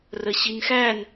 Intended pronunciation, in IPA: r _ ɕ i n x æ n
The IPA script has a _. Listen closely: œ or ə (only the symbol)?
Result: ə